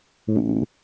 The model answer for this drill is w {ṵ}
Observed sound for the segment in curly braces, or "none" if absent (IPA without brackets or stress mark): ṵ